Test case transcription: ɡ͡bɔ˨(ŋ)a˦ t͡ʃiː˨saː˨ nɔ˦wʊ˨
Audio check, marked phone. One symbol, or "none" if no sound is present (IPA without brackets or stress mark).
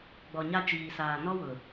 ɲ